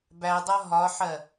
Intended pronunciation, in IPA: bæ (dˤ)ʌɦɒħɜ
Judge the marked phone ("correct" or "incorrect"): correct